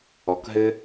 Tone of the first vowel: low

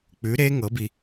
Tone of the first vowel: rising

